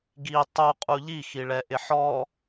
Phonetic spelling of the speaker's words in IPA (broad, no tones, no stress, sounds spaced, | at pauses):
ɡ i tˤ u qʼ u ʎ i x i ɭ ɛ ʔ ɪ ħ ɔ